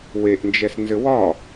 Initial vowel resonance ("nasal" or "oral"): oral